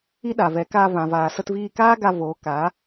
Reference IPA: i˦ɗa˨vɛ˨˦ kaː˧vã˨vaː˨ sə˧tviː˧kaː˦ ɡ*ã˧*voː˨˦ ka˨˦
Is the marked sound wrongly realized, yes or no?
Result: yes